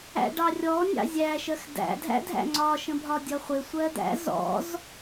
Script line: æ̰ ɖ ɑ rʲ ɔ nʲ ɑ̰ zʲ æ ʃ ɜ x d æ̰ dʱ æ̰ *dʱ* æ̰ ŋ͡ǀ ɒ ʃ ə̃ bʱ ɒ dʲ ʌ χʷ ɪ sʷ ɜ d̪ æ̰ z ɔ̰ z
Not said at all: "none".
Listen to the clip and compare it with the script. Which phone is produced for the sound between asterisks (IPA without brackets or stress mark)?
dʱ